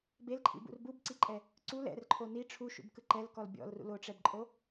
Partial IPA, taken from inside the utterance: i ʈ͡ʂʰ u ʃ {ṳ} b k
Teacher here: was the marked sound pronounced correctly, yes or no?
no